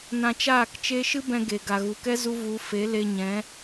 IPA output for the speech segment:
nã˧t͡ʃaː˦˨kt͡ʃe˦ ʃɨ˦bɛ̃˧ɡe˨ ɡa˨ɣu˨kɛ˦ zu˦vu˨˦ fe˨˦le˧ɲɛ̃˨˦

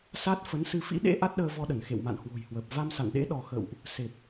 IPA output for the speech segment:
sa˦˥t̚ fə˨˦nsɨ˧ fḭ˧˥ɗḛ˧˥ ʔa˦˥t̚ɗəː˧vɔ˧ɗə˧˩n xḛ˧˨wma̰˧˨nhwo̤˨˩jhwəː˨˩p̚ va˧msa̰˧˨nɗḛ˧˥ ɗɔ˧ xə̰˧˨wʔ | se˨˩p̚

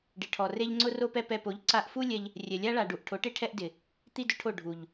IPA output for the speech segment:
ɖɪ˨ʈʰɔ˨re˦ʎ ŋ͡ǀʊ˦ro˦pɛ˦ pɛ˧po˨˦ʎ ǀa˧ʔfu˦lʲɛ˧ʎ | rʲɛ˨lʲa˦ɭa˨ɖu˨ʔ ʈʰo˨˦ʈe˦ʈʰɛ˦ʔ dɪ˨ | t̪i˦dʊ˧ʈʰo˦˨ ɖʱu˨ʎ

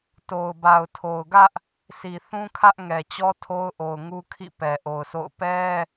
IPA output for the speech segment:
to˨ʊ̯ba˨ʊ̯ tʰo˨ʊ̯ɡä˦ʔ | si˨θũ˦kʰä˦ʔ ŋɛ˨t͡ɕɔ˦tʰo˦ʊ̯ʔo˨ʊ̯ ŋu˦kʰḭ˦˨pɛ˨ ʔo˨ʊ̯sʰo̰˦˨ʊ̯ pɛ˦

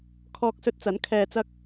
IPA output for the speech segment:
kʰɔː˧k̚sɵ˧t̚t͡sɐ˨˥n kʰɛː˨t͡sɐ˧k̚

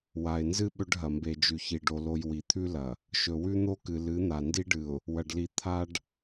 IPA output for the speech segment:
wa˨ɪ̯nzɨ˦ ɓɵ˦ɖɦɐ˨ mbe˨d͡ʒʉ˨ çi˨ɖo˨lo˨j wi˨t̪ʰʉ˦lɐ˨ | ʃɵ˨wʉ˦n̪o˦kɨ˨ lɨ˨˦n̪a˨ndi˦ɖɨ˨ʊ̯ | wɐ˨ɖli˨ t̪ʰa˨ɖ

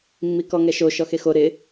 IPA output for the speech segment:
mːikɔŋɛʃo ʃɔxexo ɾɪ

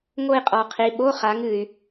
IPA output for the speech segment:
ŋo˥˧i̯qʼɔ˨qʰi˨˦ ɓo˧˥˧χa˨˦ŋɨ˨y̯

